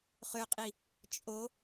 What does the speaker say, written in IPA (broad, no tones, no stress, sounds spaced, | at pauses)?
χ ø qʼ i | t͡ʃʼ o